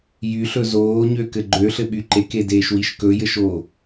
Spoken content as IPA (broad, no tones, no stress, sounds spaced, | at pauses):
j y ɬ ɵ z oː ɲ ø k ɘ ɡ͡ǃ ø ɬ ɘ ɓ y ǃ e k e d eː ʃ w i ʃ k ɵ j ɘ ʃ o